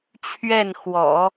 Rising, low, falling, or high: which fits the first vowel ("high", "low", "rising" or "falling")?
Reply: falling